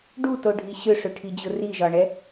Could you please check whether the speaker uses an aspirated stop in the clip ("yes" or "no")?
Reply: yes